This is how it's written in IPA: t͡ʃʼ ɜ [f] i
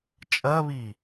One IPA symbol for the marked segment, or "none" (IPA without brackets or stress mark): β